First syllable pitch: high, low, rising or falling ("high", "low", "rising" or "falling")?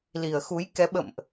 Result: low